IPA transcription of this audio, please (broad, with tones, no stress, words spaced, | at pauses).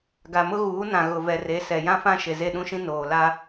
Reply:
ɡa˨mʊ˦ɣuː˨˦nã˨ ɣʊ˨vɛ˨re˨˦ sɛ˨jã˦fã˦ ʃe˨ze˦˨ɗũ˦ʃĩ˦ noː˨la˦